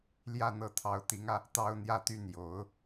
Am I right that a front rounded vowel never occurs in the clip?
no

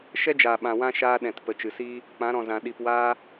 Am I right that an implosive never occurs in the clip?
no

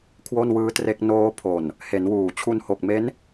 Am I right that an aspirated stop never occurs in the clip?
no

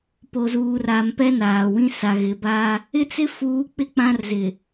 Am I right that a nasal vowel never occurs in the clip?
no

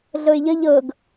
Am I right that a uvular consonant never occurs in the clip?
yes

